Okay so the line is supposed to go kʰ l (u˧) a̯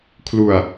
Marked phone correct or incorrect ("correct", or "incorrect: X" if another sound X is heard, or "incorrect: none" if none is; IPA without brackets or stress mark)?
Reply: correct